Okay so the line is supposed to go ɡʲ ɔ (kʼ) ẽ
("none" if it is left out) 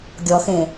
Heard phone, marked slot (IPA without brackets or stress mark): x